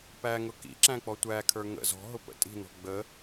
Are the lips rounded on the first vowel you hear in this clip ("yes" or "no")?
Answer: no